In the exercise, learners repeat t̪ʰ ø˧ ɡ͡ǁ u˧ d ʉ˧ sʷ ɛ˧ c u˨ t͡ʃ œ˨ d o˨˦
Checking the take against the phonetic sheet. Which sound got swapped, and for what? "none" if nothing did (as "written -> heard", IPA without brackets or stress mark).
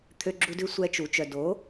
c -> t͡ʃ